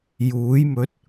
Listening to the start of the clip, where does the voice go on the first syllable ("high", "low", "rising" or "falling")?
rising